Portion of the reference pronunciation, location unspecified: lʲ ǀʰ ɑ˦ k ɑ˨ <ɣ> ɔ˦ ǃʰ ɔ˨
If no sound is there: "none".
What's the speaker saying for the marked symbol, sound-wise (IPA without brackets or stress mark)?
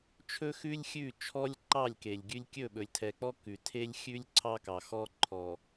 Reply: x